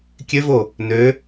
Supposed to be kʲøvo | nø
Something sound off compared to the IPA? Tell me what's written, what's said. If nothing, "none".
none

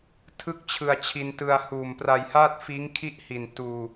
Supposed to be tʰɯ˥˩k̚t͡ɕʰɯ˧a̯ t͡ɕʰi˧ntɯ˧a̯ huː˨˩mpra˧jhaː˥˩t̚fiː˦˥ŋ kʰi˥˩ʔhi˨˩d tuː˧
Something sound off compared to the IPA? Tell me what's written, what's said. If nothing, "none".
d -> n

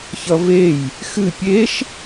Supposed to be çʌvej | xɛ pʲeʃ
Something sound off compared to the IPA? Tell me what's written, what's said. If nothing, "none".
ɛ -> ɨ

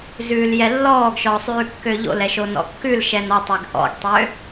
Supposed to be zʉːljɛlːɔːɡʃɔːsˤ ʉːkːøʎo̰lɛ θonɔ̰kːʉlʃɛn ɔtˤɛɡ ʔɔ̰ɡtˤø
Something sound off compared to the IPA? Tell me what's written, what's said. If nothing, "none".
θ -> ʃ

